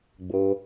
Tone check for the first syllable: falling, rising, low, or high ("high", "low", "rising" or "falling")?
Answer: high